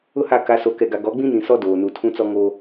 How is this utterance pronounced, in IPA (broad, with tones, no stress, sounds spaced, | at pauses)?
ʊ˦ h a˦˨ k a˨ s o˨ k ɛ˨ ɡ a˨ ɡ ɔ˨˦ ɡ͡b ĩ˦ n ĩ˨ s ɔ˦ d oː˨ n u˨ tʰ ũ˦ t͡s ɔ˦ ŋ oː˦